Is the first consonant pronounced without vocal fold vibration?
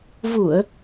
no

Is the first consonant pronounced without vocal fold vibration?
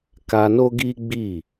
yes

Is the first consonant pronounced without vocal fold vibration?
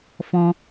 yes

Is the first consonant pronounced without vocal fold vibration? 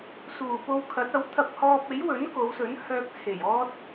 yes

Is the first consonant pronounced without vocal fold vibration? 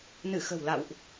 no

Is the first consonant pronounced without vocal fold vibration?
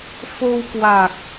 yes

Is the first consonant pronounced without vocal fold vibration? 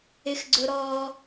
yes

